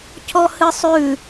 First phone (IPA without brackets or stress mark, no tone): cʰ